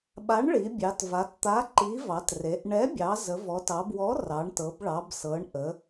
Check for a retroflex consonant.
present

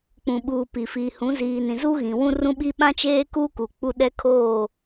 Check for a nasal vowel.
present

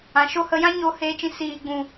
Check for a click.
absent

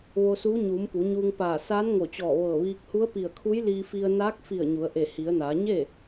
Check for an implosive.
absent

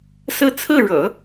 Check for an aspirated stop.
present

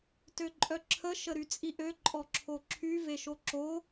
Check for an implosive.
absent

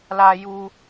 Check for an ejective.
absent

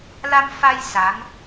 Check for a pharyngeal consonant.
absent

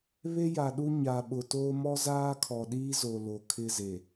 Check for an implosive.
present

